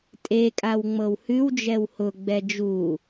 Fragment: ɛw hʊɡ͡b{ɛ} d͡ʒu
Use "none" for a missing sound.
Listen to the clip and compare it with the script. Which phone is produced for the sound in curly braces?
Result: ɛ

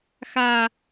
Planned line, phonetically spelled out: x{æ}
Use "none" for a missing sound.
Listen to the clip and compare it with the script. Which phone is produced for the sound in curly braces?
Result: a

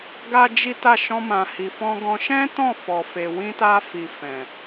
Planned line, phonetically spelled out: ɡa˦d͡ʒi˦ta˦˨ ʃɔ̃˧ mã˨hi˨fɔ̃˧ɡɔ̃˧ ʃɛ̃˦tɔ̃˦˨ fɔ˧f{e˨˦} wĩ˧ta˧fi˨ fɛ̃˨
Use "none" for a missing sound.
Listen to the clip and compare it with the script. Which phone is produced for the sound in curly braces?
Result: e˧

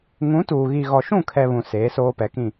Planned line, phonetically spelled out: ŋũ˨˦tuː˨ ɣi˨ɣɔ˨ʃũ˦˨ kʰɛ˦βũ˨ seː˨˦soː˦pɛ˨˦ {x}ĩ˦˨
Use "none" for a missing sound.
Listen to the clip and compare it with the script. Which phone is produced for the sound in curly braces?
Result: k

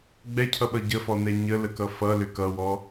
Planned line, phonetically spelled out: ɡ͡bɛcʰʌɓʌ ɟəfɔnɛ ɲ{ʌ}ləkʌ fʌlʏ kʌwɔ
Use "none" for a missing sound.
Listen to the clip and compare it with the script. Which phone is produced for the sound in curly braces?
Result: ə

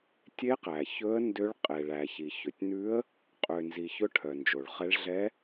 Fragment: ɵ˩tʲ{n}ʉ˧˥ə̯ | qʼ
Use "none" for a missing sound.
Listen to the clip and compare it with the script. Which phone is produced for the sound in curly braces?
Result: n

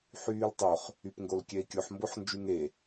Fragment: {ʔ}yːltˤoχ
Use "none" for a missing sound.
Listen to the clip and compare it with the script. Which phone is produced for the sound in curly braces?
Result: ħ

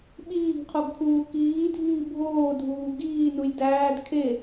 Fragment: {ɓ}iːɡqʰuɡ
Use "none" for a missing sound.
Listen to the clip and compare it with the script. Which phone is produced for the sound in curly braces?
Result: ɓ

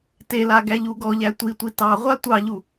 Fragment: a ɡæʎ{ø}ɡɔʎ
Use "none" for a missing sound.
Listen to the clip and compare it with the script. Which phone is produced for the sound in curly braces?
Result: u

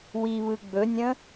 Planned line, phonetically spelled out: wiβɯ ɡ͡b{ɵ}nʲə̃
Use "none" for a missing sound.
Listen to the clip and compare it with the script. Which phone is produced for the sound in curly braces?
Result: ɵ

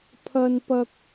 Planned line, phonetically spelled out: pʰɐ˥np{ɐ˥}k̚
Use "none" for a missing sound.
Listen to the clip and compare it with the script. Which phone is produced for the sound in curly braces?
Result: ɐ˥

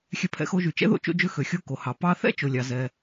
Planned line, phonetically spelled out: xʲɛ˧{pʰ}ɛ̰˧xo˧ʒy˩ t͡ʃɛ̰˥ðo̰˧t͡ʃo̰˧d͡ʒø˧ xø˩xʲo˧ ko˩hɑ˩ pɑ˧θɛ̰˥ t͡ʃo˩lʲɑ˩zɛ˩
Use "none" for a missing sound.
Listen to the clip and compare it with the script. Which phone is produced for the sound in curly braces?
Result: pʰ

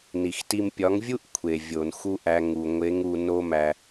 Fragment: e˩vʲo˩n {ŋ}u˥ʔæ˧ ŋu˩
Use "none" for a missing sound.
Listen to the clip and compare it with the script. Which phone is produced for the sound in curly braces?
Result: x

